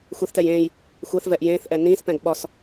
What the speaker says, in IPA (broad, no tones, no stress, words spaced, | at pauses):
xʷeθtɛj ẽːj | xʷɛθvɛʔ jẽːθʔɛ nĩːspɛ̃ɡ ɓɒs